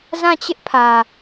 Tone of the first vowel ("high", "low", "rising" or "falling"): falling